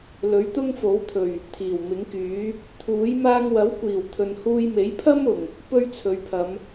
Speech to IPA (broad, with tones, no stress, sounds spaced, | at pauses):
l ɵ˨˥ ɥ t̪ ʊ˥ ŋ f o˨˥ w t̪ʰ ɵ˨˩ ɥ | t̪ʰ iː˨˩ w m ɪ˨˥ ŋ k yː˨˥ | t̪ʰ uː˨˥ j m aː˧ ŋ w ɐ˨˥ w kʷ iː˨˩ w t̪ʰ ɵ˨ n h uː˧ j m e˨˥ j pʰ ɐ˥ m ʊ˨˩ ŋ | p ɵ˥ ɥ t͡sʰ ɵ˨ ɥ pʰ ɐ˨˧ m